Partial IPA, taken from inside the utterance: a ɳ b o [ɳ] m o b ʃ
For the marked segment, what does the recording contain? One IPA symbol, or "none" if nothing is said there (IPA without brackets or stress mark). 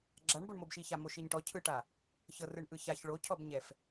ɳ